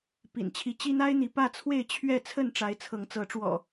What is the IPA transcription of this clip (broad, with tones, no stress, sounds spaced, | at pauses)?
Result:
p ḭ˨˩ n t͡ɕʰ i˨˦ t͡ɕ i˦ n̪ a˦ ɪ̯ n̪ i˨˦ p ä˥˨ t͡sʰ w e˥˨ ɪ̯ t͡ɕʰ ɥ ɛ˥˨ t͡sʰ ə˥˨ n ʈ͡ʂ a˨˦ ɪ̯ t͡sʰ ɤ˨˦ ŋ t͡s ɤ˨˦ ʈ͡ʂ w ɔ̰˨˩